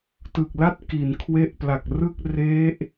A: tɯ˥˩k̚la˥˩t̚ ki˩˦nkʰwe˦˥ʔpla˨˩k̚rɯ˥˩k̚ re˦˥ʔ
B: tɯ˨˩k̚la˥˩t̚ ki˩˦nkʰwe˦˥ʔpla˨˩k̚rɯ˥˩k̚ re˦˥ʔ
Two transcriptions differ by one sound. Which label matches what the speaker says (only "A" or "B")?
B